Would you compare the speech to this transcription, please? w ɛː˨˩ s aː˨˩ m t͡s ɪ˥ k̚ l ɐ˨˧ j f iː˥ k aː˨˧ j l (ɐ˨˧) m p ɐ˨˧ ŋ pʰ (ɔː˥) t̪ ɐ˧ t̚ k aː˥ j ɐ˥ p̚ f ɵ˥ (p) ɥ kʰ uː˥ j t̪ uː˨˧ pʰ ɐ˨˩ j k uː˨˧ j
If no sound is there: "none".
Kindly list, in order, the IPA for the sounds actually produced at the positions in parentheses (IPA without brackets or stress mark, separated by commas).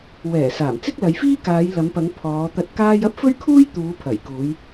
ɐ˨˧, ɔː˨˧, none